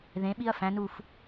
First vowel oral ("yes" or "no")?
no